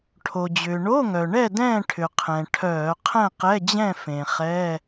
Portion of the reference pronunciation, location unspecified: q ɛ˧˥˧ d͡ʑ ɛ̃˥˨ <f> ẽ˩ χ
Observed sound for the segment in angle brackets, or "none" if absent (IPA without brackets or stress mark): f